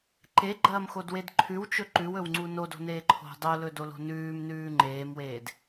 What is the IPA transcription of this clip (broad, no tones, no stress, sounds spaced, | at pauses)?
ǃ e ɡ͡ǃ ɐː m x o d w e d ǃʰ ʉ w t͡ʃ ɵ ǃ ʉ w ɵ w ŋ͡ǀ u n o d o̤ n eː ǃʰ o̤ dˤ o l ɵ d o l o̤ n ʉː m n ʉː ŋ͡ǃ eː m w eː d